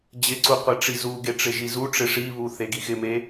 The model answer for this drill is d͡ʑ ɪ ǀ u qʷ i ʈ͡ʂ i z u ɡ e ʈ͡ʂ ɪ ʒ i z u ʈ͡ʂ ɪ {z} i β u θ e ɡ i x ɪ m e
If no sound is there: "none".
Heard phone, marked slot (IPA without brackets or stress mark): ʂ